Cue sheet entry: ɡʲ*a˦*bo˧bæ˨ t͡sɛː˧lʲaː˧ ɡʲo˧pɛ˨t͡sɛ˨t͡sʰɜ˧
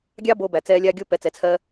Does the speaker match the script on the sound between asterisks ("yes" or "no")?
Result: no